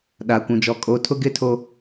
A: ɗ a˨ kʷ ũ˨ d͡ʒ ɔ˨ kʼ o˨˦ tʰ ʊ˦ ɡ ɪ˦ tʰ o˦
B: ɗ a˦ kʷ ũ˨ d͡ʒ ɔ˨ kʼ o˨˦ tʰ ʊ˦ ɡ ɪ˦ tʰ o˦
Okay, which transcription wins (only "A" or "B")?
A